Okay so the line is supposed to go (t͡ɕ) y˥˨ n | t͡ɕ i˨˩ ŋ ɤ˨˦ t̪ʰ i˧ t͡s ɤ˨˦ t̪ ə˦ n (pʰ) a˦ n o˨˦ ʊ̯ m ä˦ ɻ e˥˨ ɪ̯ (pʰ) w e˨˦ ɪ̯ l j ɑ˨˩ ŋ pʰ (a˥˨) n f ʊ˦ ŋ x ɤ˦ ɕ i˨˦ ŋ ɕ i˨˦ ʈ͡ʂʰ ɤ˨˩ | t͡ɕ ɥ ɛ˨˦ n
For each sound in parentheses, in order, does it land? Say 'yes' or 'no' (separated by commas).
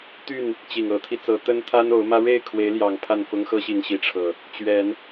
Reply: no, no, no, yes